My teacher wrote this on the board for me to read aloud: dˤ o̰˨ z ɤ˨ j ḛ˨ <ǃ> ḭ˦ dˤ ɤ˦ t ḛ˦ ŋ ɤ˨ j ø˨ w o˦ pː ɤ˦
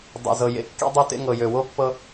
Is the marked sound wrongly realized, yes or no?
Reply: yes